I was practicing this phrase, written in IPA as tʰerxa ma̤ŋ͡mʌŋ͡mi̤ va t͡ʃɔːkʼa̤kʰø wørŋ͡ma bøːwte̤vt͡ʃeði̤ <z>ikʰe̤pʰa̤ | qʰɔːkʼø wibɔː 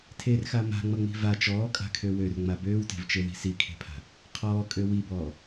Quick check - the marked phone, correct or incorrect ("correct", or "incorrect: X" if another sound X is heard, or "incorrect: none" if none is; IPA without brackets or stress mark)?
incorrect: s